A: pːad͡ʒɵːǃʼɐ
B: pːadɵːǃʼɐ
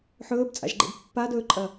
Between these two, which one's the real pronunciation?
B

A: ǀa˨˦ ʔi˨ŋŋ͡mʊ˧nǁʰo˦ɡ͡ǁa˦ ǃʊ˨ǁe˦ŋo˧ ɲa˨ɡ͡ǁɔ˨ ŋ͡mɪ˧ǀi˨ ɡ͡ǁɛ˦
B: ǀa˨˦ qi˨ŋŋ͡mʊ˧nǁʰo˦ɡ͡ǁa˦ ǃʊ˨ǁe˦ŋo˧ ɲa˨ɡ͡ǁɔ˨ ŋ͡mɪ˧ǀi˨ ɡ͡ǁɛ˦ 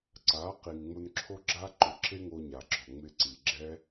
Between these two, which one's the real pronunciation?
B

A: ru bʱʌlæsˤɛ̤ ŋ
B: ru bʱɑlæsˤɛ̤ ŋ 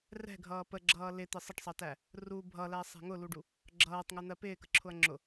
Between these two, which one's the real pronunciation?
A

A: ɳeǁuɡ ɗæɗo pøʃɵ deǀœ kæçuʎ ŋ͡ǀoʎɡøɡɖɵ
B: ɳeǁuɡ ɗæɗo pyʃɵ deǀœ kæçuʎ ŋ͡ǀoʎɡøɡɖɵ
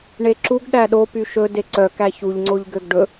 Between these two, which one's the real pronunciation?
B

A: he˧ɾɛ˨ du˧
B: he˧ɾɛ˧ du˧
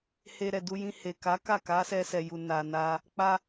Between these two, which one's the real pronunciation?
A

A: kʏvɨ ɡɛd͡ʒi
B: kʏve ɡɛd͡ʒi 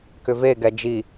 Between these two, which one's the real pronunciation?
B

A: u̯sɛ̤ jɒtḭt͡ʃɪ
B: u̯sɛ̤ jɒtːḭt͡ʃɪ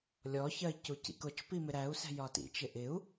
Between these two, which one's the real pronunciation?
A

